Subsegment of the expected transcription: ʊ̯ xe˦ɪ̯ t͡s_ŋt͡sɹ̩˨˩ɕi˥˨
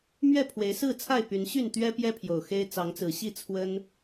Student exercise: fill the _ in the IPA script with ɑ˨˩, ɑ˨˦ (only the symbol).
ɑ˨˦